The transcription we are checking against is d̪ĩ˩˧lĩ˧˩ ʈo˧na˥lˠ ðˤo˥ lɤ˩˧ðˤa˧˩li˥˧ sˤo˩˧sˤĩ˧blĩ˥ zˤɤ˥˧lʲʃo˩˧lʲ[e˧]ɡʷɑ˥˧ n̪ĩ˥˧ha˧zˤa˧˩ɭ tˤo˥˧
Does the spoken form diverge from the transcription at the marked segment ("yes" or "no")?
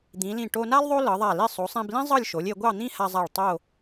yes